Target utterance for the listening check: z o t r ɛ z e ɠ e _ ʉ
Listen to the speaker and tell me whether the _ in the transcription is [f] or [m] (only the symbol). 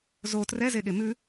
m